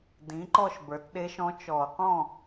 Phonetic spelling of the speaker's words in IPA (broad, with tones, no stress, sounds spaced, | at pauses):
d ĩ˩˧ ǃ ɔ˥˧ ʃ b ə˞˩˧ t ɗ e˧˥ ʃ ɔ̃˧˥ t͡ʃ ɔ˧˩˧ q ɔ̃˥˩